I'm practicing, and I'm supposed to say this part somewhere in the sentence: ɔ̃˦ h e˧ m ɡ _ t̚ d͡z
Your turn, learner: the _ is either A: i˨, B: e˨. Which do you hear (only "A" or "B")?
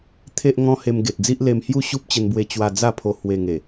B